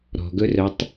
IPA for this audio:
ɾɔ̤ɡɵrœtˤ

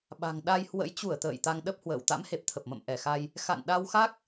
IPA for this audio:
ɓa̤˨˩ŋɗa˧jhwə̰˧˥j t͡ɕu˧˩ə̯ t̪ə̰ː˧˨jt̪a˧ŋɗə˦˥p̚ hwə̰ː˧˨w t̪a̰˧˥mhe˨˩p̚t̪ʰə˨˩p̚mə̰˧˨m ʔɛ˧˩xa˧j | xa̰˧˨nɗa˧wxa˦˥k̚

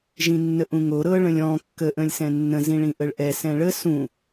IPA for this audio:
ʒĩnːəʔũŋo ɾɤ ɭə̃lʲɔ̃ kːə ʔə̃lʲsɛ̃nːə̃ zĩɭĩʔəɭʔɛ sɛ̃ɭə sũ

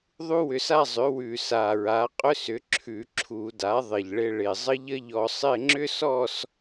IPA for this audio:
ðˤu˥wʏ˧sa˥˧zˤʏ˩˥ wʉ˨˩sa˨˩ɹa˩˥qʼʏ˥s ʏ˩˥ǁʰʉ˧˩˧ǁʰu˧˩˧da˩˥ ðˤɪ˨˩ʎɭɪ˧ɭɪ˨˩ zˤə˥ʎə˥ʎɔ˧sˤɪ˥˧ ŋ͡ǁʏ˥sɔ˥˧s

